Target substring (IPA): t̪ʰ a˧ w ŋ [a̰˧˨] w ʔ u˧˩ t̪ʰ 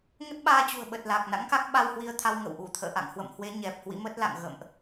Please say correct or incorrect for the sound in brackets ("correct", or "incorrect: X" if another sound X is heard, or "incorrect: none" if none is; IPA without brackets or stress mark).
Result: incorrect: ə̰˧˨